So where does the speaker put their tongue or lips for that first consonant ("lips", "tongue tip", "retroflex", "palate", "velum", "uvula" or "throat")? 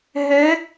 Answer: throat